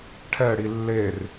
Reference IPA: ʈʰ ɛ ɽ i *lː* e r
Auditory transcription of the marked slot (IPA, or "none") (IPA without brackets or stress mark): lː